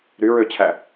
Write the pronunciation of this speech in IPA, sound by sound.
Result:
ɾ y ɹ ø t͡ɕʰ æ

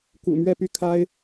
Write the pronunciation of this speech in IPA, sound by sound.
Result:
k ṵ˨˩ m ɥ ɛ˥˨ p y˥˨ kʰ a˦ ɪ̯

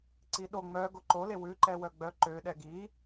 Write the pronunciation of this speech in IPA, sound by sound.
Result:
ǀ i ɗ o ŋ͡m œ ɡ o ǃ o l e w ʉ ǃ ɛ w œ ɡ͡b œ ǃ ø ɗ ɛ ɡ i

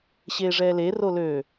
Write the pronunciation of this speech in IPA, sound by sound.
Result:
ɕ eː ʐ ɛː l e r o l ø

